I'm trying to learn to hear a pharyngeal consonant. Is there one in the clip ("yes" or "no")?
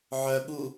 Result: yes